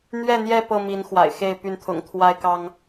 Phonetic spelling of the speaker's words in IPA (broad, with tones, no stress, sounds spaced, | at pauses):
n̪ ɥ ɛ˥˨ n̪ j ɛ˥˨ p ɤ˥˨ m i˨˦ n x w a̰˨˩ ɪ̯ x e˥˨ ɪ̯ p y˨˦ n t̪ʰ ʊ̰˨˩ ŋ t̪ʰ w a˦ ɪ̯ k ɑ˦ ŋ